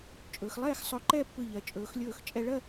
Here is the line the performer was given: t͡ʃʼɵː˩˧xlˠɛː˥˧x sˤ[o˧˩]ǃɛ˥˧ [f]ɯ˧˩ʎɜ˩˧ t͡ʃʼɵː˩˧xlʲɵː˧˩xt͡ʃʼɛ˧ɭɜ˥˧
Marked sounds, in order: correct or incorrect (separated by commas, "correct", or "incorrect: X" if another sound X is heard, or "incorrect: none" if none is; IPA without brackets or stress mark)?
incorrect: ɵ˧˩, incorrect: pː